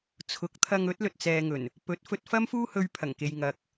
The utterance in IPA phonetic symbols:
t͡sʰ ʊ˨˥ k̚ t̪ʰ ɐ˧ ŋ ɵ˨˥ t̚ l ɵ˨ t̚ t͡s ɛː˨ ŋ ɵ˨˩ n | p ɵ˨˥ t̚ f ɵ˧ t̚ f ɐ˥ m f uː˥ h ɵ˧ ɥ pʰ ɐ˨˩ ŋ k e˨ j ŋ ɐ˨ k̚

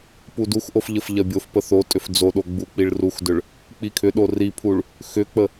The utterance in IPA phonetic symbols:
p u d u x ʔ o f ʎ ə f ʎ ɐ bʲ o f p ə θ o tʼ ʏ f d͡z o ɗ o ɡ͡b u k͡p i ɭ r u x d ʏ ɭ | k͡p i kʰ ʏ ɗ o r i pʰ u ɭ | x ʏ k͡p ə

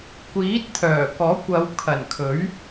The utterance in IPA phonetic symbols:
kʷ iː˨˥ t̚ t̪ʰ œː˨˩ k ɔː˨˥ kʷ ɐ˨˧ w kʰ ɐ˨˩ n kʰ ɵ˨˥ ɥ

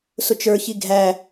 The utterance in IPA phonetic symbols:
s ʊ t͡ʃ ə˞ ç i ɡʱ æ

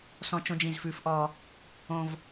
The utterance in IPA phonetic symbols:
s ɔ̃˦ t͡ʃ õ˦ d͡ʒ ĩ˦˨ z f ʉ˦ f ʔ ɔː˦ | õ˦ v

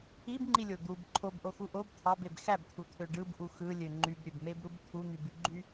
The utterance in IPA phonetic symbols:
i b ŋ͡ǃ i lʲ o d̪ u b ǃʰ o b ʔ o x u ʔ o b t̪ʰ ɑ b e b x æ b t̪ʰ u t̪ʰ ø ɖ ɯ b ʔ u x ɯ lʲ ø ŋ͡ǃ y b ɾʲ ø b m e b ɾ u b t̪ʰ u n̪ y b y ɡ͡ǃ y

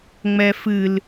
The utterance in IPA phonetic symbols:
ŋ͡m ɛ f ɨ l

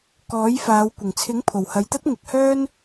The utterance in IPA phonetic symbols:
k ɔː˨˥ j f aː˨˧ w kʷ ɪ˨˩ ŋ t͡sʰ ɪ˨˥ ŋ pʰ o˨˩ w h ɐ˨ j t̪ ɐ˥ t̚ ŋ ɪ˨ k̚ h œː˥ n

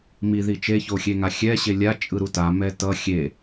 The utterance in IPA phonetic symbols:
m i ð i t͡ʃ e ç o xʲ e ŋ a xʲ ɛ ɕ e lʲ a t͡ʃʼ ɯ ɾ u t a m ɛ t ʌ xʲ e

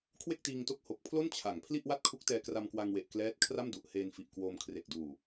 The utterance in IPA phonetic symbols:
kʰ w e˥˩ k̚ t iː˧ ŋ t o˦˥ k̚ h o˨˩ k̚ pʰ l o˥˩ n t͡ɕʰ a˨˩ ŋ pʰ l i˥˩ ʔ w a˥˩ t̚ kʰ u˦˥ k̚ t ɛː˧ k r a˧ m k w a˧ ŋ w e˨˩ ʔ k l ɛː˦˥ t̚ kʰ r a˥˩ m d u˨˩ ʔ h eː˧ n f i˨˩ ʔ k w oː˧ m kʰ r e˨˩ k̚ d uː˨˩

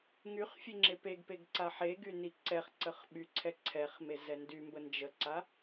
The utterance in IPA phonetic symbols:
ŋ y χ fʲ e ŋ͡ǁ e p e ɡ p e ɡ ǀ a ħ e ɡ y n i ǀ ɛ χ ǀ ə χ ɓ y ǀʰ ɛ ǀʰ ɛ χ m e z ɛ n d y m b ə n d͡ʒ ə ǀ a

